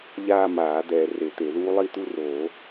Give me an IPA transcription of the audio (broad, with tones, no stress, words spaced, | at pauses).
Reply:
ʎaː˥˧maː˨˩˦ d̪ɛː˨ re˨˩˦t̪e˨˩˦ðuː˦˥ lˠi˥˧t̪u˥˧roː˨˩˦